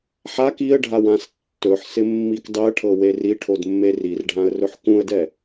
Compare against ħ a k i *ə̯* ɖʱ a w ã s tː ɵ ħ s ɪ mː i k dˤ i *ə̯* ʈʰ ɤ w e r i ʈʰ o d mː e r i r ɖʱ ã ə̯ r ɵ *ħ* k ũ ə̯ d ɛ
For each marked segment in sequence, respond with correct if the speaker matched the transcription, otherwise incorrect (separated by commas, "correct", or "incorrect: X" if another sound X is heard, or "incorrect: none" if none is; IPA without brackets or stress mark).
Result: correct, correct, correct